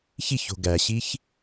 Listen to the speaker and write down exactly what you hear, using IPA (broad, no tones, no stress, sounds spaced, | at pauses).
ç i ç o̤ ɡ æ ɕ i ç